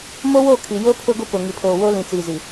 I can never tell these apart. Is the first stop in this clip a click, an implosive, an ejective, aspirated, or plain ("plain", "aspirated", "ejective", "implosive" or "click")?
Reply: aspirated